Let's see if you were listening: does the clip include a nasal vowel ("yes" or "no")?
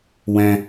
yes